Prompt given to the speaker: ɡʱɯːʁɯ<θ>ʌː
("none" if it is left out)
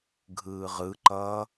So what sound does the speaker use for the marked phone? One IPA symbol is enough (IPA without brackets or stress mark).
ǃ